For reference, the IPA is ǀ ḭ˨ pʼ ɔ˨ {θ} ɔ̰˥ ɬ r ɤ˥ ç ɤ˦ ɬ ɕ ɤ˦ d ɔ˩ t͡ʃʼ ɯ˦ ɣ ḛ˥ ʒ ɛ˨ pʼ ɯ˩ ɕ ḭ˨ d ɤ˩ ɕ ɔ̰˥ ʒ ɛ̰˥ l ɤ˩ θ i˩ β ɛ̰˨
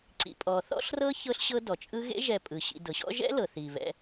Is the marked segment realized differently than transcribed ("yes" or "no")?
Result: no